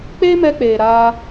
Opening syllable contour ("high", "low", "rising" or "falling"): high